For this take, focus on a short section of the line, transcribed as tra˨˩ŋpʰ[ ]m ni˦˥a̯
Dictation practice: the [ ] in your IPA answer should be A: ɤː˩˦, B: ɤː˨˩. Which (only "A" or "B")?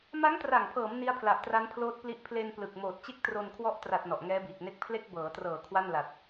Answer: A